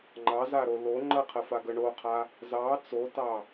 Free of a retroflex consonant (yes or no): no